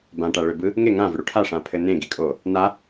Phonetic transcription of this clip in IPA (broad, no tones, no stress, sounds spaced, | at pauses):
b ã ʈ a ɭ ʏ b ɯ | ŋ e ŋ ã v ʏ ɽ u ʈʰ a ʂ ã pʰ ɘ n ẽ ɡ i kʼ o | n a